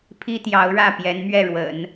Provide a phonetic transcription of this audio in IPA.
pʰi˥t̪jɑ˧˥ʊ̯ɻä˥˩ pjɛ˧˥nmɥɛ˥˩ɻwə̰˨˩˦n

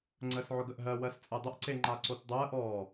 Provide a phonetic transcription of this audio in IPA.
ŋ͡ǀəːsʕʊɡəʔɦɜ wɜst͡sʼɛdˤəʔ ǀeŋ͡ǃaǀotdˤɜːʔ ɔ

